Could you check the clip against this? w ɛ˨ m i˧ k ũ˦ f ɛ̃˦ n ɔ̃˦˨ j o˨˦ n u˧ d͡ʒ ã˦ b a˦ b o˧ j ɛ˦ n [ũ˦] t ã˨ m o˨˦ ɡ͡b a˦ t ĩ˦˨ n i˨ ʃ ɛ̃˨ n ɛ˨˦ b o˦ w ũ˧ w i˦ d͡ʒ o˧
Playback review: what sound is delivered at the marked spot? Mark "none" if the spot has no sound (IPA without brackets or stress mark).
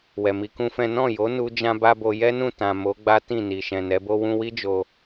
ũ˦˨